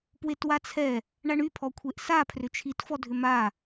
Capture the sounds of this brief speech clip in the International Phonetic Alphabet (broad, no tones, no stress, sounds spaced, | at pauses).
p w e t w a t͡sʰ ɛ | ɳ a ɳ y pʰ ɔ kʷʰ e ʔ s a pʰ r ʏ t͡ʃʰ i t f ɔ dʱ ʏ m a